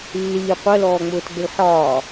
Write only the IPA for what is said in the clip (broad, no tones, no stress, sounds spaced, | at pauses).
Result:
lː iː qʷ ɜ l ɔː ŋ͡m ʊː t ɡ͡b ɪ l ħ ɒː